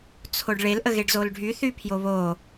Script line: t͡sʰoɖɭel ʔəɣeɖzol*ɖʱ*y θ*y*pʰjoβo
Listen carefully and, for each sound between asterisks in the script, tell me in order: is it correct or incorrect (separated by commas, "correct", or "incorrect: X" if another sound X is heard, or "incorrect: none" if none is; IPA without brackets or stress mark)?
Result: correct, correct